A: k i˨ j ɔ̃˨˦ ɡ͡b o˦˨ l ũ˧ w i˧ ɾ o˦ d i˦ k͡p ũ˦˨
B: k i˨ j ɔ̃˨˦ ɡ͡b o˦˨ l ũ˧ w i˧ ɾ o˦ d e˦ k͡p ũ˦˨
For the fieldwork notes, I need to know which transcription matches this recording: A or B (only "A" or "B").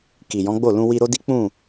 A